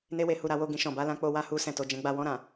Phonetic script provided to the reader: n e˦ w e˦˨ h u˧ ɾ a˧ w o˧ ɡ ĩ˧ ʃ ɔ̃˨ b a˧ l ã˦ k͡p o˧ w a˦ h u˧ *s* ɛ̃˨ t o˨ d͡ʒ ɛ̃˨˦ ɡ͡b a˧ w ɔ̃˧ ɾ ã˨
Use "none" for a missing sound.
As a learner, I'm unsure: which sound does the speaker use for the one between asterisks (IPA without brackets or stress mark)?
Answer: s